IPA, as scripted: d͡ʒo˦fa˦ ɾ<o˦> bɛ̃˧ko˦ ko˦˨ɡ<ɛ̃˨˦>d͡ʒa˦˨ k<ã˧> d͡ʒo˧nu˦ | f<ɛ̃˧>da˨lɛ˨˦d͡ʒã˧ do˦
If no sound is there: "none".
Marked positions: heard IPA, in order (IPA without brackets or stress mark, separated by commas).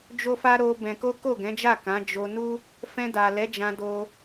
o˧, ɛ̃˨˦, ã˨˦, ɛ̃˧